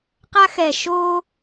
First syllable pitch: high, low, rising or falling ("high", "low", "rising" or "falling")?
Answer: high